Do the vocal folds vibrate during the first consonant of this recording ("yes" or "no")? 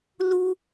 yes